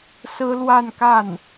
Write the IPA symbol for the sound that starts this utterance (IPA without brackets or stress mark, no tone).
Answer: s